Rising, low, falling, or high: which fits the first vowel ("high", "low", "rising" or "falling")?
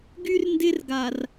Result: high